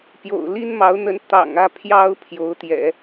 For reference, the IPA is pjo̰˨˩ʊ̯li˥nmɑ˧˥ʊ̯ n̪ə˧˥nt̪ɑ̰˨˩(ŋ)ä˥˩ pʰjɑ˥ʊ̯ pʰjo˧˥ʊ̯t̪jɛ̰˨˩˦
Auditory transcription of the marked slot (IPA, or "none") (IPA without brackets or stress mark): ŋ